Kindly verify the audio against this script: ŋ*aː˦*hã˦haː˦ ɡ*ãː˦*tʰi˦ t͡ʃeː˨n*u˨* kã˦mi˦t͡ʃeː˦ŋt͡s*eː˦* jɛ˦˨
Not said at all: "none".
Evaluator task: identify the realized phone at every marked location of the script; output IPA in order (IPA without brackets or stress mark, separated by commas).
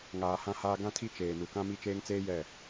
aː˨, ã˦, u˨, eː˦